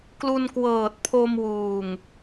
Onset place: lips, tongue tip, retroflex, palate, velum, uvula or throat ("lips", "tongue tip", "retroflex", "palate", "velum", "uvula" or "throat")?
velum